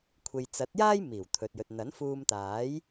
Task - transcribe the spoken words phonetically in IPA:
kʷʰ e˨ j t͡s ɐ˨˥ t̚ j aː˥ j m iː˨˩ w t̪ʰ ɵ˨ t̚ j ɵ˨ t̚ n̪ ɐ˨˥ n f uː˧ m t̪ aː˨˥ j

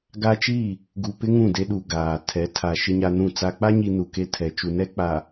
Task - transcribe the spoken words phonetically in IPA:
ɡ a˦ t͡ʃ i˦˨ | ɡ u˨ p ɪ˦ ŋ ũ˦˨ d e˦ ɗ u˨ ɡ aː˨ tʰ ɛ˨˦ tʰ a˨ ʃ ɪ˦ ɲ a˦ n ũ˦˨ t͡s a˨ k͡p a˦ ɲ i˨ n u˨ k e˦ tʰ ɛ˨ t͡ʃ u˨ n ɛ˦ k͡p a˨

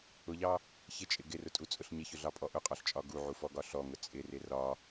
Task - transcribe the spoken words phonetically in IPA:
ʊ ʎ ɑ | ç ɪ t͡ʃʼ ɪ ɡ ɪ r ʊ tʼ u t͡sʼ ʊ ɬ ɲ ɪ ç ʊ ɮ ɑ pʼ ɔ ʔ ʊ qʼ ɔ ɬ t͡ʃʼ ɒ ɡ u ʕ u f ɔ ɡ ɒ ɬ ɔ ŋ ʊ t͡sʼ ɪ r ɪ r ɒ

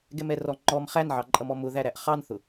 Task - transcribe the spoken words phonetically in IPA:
ɡ ɛ m ɛ r ɔ ŋ͡ǃ ɔ m χ æ n ʕ ɑ ǃʼ ʌ m ɔ m ʊ ð æ ɾ æ ʔ χ ɑ n θ ʊ

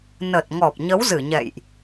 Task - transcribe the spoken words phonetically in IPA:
n ə˨˩ t̚ ŋ ɔ˨˩ p̚ ɲ ə˨˦ w z ɨ˧˩ ɲ ɛ̰˧˨ j ʔ

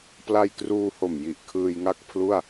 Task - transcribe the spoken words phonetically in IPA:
p l a˧ j k r uː˧ h o˨˩ m j i˨˩ ʔ kʰ ɯː˧ j ŋ a˥˩ k̚ pʰ l u˥˩ a̯

